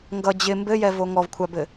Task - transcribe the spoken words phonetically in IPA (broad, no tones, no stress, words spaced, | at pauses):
ŋɡʌ d͡ʑɪ mbɘjɛvo ŋɔvkʷʰabɘ